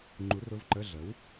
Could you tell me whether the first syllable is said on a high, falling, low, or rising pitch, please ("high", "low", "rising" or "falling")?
rising